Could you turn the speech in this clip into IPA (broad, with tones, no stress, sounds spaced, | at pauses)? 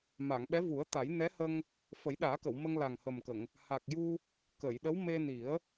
m a˨˩˨ ŋ ɓ ɛ˧˥ v u˨˩˦ ə̯ t̪ a˨˩˦ j n ɛ˧˥ h ə˧ ŋ | f ə˨˩˦ j ɗ aː˨˩˦ k ə˨˩˨ w m ə˧ ŋ l a˨˩ ŋ h ə˨˩ m k ə˨˩˨ ŋ | h a˨˩ k̚ j u˧ | k ə˨˩˨ j ɗ ə˧˥ w m e˧ n i˨˩˦ ə̯